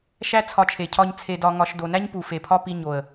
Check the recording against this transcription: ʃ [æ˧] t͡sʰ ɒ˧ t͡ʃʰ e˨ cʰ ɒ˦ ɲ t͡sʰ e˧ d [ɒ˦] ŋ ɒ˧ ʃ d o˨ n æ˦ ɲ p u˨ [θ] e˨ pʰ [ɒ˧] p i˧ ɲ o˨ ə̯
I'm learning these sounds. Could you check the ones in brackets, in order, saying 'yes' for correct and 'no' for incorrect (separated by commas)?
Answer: no, no, no, no